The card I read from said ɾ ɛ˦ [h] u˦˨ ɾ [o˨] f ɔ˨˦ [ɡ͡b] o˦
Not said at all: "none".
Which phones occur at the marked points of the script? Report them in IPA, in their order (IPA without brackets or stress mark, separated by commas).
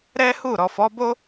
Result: h, ɔ˨, b